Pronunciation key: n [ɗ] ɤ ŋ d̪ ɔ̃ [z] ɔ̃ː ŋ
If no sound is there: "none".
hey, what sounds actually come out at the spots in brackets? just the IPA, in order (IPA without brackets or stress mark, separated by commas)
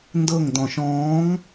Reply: d, ʃ